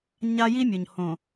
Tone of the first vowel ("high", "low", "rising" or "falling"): high